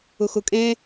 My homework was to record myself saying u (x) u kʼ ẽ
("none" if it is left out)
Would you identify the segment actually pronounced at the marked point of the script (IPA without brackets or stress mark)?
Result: x